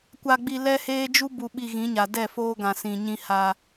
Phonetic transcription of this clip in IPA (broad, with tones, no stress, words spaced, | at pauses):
kʷa˨ɡ͡bi˨ lɛ˦heː˦ d͡ʒu˦bu˨ɓi˨ ɣĩ˨˦ɲa˨ dɛ˦˨foː˦ɡã˨ sĩ˨ɲĩ˦ha˦